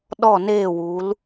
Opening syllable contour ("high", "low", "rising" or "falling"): falling